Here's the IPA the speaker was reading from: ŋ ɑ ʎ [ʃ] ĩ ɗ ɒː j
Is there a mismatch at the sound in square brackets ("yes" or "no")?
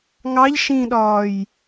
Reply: no